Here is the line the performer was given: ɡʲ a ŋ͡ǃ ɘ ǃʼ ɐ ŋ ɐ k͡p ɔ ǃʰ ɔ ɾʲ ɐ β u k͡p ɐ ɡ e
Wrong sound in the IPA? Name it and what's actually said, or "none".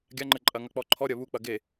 none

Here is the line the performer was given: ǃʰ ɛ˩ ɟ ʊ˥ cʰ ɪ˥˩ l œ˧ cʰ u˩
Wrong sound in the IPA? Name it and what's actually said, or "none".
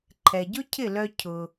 u˩ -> ʊ˩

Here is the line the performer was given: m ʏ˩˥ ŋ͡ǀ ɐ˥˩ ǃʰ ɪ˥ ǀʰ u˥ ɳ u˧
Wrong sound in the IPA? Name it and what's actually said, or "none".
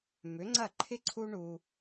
none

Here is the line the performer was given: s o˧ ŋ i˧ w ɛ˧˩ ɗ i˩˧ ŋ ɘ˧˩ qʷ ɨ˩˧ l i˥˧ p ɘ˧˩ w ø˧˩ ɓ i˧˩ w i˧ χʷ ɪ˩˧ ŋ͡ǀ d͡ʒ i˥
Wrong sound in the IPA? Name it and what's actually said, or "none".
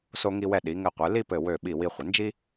ŋ͡ǀ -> n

